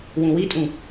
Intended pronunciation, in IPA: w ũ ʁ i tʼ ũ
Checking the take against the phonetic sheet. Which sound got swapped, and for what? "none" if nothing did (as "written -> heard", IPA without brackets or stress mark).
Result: ʁ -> w